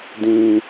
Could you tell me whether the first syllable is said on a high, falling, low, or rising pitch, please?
high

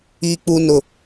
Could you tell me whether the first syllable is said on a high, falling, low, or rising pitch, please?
high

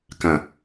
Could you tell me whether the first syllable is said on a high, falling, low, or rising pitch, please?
low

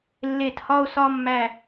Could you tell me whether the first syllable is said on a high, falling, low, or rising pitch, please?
falling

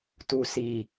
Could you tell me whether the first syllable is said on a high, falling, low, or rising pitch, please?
low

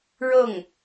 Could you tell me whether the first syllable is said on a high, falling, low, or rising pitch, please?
falling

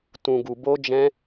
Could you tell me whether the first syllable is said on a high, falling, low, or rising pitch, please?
low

